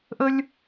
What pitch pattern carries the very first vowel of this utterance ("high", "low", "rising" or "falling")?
high